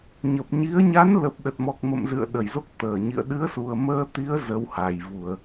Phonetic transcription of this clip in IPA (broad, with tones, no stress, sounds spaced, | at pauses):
ɲ ə˨˩ p̚ ɲ i˨˦ ə̯ ɲ a˨˦ n l ə˨˩ p̚ ɗ ə˨˩ t̚ m ɔ˨˩ k̚ m ə̰˧˨ m z ɨ̰˧˨ ə̯ ɗ ə˧˩ j z o˦˥ k̚ t̪ əː˧˩ ɲ ḭ˧˨ ə̯ ɗ ɨ˨˦ ə̯ s u˨˩ ə̯ m əː˧ t̪ i˨˦ ə̯ z ə˨˦ w h a˨˩ j v u˧˩˨ ə̯